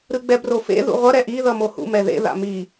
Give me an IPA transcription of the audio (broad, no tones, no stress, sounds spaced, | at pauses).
ɾ ɯ ɡ͡b ɛ b r o f ḛ ð ṵ ʁʷ ʌ ɾ ɛ ʔ i ð ʌ m o h ṵ m ɛ ð ḛ ð a̰ m i